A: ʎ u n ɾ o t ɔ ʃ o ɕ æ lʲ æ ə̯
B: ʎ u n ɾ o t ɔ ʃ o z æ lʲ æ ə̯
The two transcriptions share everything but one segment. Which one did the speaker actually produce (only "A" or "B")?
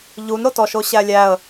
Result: A